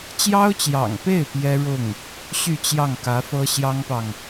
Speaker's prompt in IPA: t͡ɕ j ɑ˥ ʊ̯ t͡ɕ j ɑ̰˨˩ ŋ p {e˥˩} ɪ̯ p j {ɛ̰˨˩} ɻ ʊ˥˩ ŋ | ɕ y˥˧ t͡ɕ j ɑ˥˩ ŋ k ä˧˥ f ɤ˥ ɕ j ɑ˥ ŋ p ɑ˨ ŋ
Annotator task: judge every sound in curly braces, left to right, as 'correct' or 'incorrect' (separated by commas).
correct, incorrect